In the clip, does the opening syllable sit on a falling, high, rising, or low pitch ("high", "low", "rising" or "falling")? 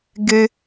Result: high